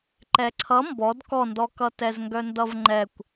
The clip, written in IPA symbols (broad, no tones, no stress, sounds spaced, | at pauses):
ǃ ɛ ǀʰ ʌ m b ɔ d k ɔ n d ɔ k ʌ t ɛ z ŋ ɡ œ n d ʌ v ŋ͡ǃ ɛ kʷ